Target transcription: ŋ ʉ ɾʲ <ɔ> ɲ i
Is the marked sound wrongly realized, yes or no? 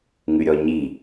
no